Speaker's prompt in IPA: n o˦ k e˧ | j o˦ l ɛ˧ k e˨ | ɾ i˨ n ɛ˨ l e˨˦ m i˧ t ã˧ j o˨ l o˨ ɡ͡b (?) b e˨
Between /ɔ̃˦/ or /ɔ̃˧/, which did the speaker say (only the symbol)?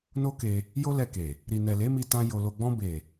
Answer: ɔ̃˧